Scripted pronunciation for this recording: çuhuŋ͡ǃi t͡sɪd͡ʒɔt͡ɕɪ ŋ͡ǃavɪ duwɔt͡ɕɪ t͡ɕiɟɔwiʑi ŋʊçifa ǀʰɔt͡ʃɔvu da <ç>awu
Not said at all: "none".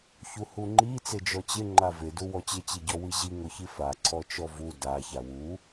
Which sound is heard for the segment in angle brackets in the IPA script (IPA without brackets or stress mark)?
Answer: ç